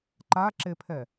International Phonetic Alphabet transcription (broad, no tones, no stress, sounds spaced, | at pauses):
ǃ a ǁ e pʰ ɛ